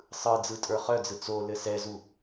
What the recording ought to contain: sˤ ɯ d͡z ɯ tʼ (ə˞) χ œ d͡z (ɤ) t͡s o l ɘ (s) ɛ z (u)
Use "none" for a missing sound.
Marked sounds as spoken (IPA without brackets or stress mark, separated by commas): ə˞, ɯ, s, u